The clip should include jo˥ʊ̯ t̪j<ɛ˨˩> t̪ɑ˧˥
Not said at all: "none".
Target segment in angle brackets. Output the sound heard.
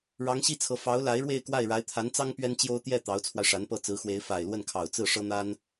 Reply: ɛ˥˩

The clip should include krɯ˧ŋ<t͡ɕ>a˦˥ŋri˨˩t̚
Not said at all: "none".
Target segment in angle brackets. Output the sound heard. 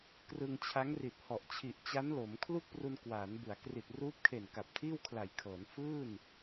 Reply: t͡ɕʰ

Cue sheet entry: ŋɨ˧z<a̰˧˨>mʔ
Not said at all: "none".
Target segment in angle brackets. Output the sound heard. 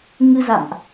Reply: a̰˧˨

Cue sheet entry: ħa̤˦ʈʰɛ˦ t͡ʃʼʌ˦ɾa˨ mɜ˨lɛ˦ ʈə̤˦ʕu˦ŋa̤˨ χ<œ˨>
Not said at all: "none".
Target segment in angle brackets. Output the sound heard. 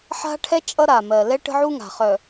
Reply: œ˨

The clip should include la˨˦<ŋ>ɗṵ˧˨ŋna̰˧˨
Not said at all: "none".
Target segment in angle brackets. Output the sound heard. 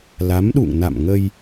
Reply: m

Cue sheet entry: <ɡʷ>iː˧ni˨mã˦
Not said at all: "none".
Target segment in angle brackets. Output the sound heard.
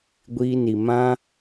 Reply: ɡʷ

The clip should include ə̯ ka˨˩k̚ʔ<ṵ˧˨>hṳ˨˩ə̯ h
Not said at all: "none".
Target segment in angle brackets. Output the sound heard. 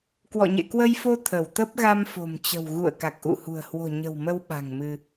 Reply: ṵ˧˨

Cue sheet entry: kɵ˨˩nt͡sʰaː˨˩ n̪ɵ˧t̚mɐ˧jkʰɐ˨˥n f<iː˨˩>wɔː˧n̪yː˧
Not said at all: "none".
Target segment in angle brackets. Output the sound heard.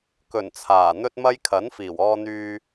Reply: iː˨˩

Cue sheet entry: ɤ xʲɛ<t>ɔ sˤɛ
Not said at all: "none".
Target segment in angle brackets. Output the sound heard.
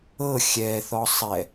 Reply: θ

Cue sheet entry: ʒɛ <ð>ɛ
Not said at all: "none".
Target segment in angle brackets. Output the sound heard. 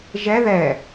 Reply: ð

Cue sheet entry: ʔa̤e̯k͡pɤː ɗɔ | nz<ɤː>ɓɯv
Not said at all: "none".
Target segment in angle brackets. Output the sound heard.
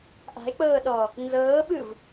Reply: ɤː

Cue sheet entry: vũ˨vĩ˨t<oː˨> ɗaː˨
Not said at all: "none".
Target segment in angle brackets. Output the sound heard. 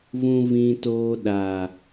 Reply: oː˨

